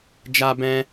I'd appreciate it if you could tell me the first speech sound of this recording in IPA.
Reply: d͡ʒ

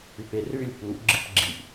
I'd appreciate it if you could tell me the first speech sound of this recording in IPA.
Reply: ʉ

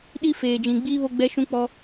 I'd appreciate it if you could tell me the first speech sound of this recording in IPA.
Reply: ɗ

